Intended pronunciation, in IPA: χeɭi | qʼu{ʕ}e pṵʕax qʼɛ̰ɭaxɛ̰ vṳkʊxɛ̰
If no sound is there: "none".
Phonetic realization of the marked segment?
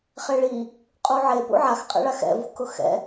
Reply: ʕ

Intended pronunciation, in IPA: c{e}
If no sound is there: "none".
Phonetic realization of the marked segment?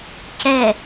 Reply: ɛ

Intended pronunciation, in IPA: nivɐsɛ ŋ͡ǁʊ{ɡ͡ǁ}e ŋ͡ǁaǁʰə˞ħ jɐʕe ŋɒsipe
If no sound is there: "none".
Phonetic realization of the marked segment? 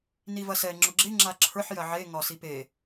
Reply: ɡ͡ǁ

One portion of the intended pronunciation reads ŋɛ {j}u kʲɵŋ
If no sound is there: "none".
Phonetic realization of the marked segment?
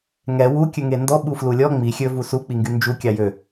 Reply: w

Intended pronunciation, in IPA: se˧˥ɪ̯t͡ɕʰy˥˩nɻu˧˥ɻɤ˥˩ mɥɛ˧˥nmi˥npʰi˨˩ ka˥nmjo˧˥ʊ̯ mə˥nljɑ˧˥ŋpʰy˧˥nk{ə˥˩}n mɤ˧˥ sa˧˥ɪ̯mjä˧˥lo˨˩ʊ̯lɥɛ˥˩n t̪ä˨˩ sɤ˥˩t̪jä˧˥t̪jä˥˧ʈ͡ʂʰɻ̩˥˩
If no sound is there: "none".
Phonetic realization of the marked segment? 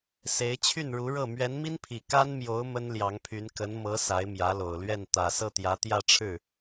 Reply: ə˧˥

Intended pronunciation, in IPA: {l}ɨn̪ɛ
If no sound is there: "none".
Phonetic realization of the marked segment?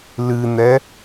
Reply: l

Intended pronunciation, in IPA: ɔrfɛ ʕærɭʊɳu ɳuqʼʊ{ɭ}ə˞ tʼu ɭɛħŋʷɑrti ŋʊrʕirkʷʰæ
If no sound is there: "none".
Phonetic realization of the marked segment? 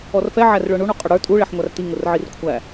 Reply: ɽ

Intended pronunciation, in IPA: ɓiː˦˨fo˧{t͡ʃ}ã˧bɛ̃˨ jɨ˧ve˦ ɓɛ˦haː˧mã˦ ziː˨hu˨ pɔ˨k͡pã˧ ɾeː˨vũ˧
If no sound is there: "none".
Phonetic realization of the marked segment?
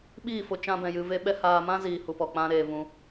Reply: t͡ʃ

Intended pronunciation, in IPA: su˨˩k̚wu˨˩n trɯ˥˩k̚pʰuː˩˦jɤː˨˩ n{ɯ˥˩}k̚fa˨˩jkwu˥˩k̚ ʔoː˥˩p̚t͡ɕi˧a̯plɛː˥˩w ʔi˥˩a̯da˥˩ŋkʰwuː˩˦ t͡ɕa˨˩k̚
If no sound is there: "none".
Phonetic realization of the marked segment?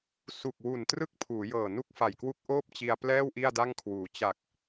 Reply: u˥˩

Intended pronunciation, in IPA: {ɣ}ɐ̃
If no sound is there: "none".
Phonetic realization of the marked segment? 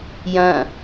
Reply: j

